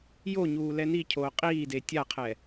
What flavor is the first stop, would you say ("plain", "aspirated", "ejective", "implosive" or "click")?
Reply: aspirated